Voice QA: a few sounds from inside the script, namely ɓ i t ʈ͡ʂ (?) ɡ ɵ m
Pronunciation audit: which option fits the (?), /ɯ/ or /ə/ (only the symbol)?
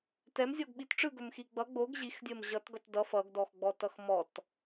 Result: ɯ